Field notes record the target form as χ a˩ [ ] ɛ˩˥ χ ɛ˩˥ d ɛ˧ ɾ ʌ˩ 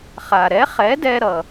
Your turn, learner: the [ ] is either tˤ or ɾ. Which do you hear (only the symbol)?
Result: ɾ